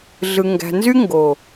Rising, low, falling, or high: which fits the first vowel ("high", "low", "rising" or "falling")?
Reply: low